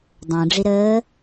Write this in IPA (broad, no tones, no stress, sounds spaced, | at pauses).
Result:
dˤ ə̃ː ɖ͡ʐ i ɾ əː